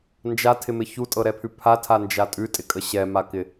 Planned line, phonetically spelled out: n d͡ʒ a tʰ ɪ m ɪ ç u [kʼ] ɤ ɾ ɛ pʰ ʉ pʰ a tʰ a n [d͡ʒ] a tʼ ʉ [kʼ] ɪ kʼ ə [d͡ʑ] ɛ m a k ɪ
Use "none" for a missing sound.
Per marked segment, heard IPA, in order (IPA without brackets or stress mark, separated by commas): tʼ, d͡ʒ, tʼ, ɕ